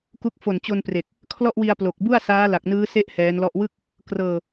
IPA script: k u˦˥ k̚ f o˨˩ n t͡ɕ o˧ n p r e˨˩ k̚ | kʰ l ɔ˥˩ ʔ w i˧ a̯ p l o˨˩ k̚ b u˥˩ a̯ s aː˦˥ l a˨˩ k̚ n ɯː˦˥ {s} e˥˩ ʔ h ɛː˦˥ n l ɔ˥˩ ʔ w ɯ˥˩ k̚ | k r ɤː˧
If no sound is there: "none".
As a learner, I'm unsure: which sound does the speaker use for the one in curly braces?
s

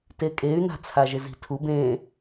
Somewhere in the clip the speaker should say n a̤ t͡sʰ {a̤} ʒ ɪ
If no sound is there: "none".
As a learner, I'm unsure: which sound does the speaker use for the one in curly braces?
a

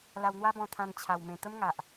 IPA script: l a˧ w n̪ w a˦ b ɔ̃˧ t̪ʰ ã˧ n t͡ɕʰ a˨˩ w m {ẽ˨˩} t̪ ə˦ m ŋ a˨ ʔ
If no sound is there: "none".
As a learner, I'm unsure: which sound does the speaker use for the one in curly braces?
ẽ˨˩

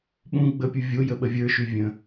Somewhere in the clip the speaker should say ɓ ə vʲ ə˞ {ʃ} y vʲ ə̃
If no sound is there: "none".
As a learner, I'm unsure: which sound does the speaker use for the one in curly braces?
ʃ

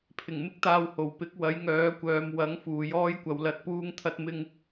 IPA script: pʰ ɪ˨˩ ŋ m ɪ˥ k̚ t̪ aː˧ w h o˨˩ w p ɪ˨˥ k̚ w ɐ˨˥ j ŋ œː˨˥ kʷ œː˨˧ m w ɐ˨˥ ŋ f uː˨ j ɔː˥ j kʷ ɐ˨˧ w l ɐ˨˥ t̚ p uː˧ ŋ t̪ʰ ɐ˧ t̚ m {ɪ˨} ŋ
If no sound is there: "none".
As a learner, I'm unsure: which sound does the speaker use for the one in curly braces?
ɪ˧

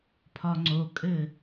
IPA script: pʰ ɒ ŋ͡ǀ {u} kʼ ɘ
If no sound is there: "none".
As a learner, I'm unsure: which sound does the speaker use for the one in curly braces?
o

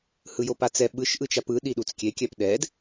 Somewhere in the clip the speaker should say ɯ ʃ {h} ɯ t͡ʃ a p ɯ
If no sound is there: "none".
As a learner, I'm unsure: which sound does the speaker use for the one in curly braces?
ʔ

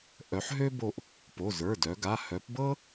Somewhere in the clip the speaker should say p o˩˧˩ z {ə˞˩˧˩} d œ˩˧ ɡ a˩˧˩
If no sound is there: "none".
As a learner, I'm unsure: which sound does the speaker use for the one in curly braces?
ə˞˩˧˩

